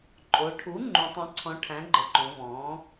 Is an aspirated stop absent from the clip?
no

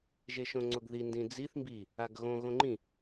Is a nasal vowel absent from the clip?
no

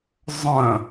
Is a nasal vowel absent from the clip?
no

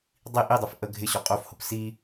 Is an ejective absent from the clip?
no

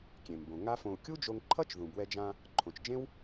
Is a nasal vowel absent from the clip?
no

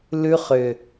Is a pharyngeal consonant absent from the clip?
yes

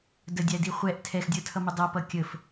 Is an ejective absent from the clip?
yes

